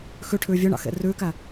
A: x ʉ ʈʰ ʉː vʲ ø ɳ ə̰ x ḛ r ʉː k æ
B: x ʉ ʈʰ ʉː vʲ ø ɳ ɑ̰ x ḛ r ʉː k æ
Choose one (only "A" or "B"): B